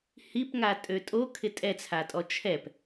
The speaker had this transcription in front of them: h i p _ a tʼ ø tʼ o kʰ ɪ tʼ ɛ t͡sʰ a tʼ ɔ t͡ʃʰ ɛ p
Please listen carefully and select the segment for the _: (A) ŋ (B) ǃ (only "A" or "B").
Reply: A